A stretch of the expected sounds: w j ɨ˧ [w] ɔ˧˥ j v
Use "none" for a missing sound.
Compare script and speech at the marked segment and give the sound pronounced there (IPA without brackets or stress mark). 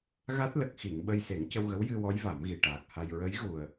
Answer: w